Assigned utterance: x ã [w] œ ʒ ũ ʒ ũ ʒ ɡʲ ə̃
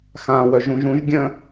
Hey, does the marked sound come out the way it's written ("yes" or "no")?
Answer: yes